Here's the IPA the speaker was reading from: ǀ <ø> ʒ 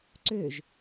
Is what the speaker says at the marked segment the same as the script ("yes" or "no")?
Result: yes